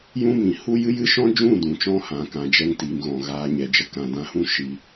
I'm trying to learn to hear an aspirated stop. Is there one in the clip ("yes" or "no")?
no